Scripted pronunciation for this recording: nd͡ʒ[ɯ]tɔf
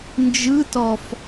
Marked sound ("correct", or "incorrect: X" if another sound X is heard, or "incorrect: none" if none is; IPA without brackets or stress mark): correct